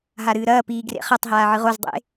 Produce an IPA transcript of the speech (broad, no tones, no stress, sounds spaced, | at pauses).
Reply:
ɦ a ɾ ɨː ɾ ɐː p iː ɡ r ḛ χ ɐ tˤ ɦ aː ʕ ɨ ʁ o z dˤ ḛ